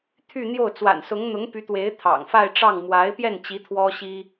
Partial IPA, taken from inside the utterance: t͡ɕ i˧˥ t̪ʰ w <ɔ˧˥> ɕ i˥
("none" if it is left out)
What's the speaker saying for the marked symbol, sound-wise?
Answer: ɔ˥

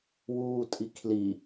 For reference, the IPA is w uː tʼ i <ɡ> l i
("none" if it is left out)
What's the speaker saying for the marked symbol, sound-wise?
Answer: kʰ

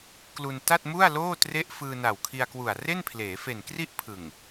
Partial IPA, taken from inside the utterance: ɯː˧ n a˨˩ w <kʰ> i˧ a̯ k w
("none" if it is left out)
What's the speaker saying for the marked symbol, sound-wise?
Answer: kʰ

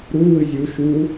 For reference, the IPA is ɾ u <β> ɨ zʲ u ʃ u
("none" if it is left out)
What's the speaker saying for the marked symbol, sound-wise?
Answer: w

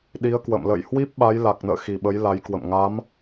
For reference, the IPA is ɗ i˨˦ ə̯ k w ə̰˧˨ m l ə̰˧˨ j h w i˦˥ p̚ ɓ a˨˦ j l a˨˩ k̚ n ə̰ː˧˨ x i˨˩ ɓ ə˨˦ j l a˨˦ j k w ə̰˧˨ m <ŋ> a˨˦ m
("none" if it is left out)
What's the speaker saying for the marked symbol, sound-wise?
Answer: ŋ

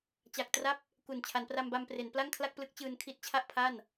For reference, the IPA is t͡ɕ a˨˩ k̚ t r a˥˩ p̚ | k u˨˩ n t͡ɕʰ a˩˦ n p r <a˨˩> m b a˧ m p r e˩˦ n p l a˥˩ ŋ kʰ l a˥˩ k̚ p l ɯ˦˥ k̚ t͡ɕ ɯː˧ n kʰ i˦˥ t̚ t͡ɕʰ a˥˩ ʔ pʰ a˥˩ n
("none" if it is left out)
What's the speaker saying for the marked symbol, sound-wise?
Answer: a˧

